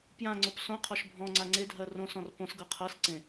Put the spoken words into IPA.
pjãŋ͡ǀop sõqʰɔʃ bʱɔ̃ŋ͡ǀa ŋ͡ǀedʱɜ rõsɔ̃r põsɡɤ qʰɤsǀẽ

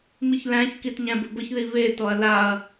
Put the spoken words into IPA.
miçlæ̃çkit ɲæ̃bɘbəçði βetɔɐ̯ laɐ̯

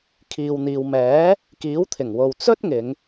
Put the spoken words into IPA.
kʰiː˨wn̪iː˨w mɛː˨˥ | kiː˨˥wt̪ʰɪ˨˩ŋwo˨w t͡sɵ˥t̚ŋɪ˨˧ŋ

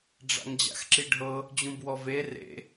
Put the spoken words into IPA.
ɖ͡ʐa̰ŋd͡ʑa̰xǁiɖʱɤ | d͡ʑũbwɔve rḛ

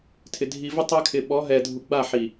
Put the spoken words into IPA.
tʰɪ˨ dʱi˨vɪ˦ tˤɛ˦ kʰɪ˨ɓɔ˨˦ ɦɛ˨dʱu˨ɡ͡ba˦˨ ħi˨

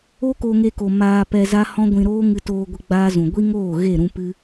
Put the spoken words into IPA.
o˦ko˧ŋe˧ko˨ maː˧ pɛ˧za˦ hɔ̃˦ɡʷĩ˧ ɾoː˦ ŋɨ˧toː˧ɡʷə˧ ɡ͡baː˦zũ˨ ɡʷi˦ŋoː˦˨ ɣe˦˨ɾũ˧pɨ˧

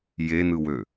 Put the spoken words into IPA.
jenɯwø

